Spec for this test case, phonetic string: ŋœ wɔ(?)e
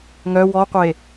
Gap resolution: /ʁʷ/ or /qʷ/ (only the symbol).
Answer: qʷ